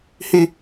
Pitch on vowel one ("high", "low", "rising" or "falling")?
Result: high